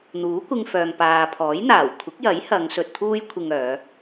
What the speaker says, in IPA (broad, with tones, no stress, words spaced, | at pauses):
n̪uː˨˥kʷɪ˧ŋ fœː˨ŋpaː˨pʰɔː˨˥jn̪aː˨˩w kʷʰɪ˨˥k̚jɐ˨˥j hɐ˨˧ŋ sɵ˨t̚ t̪ʰuː˥jkʷʰɪ˧ŋœː˨˧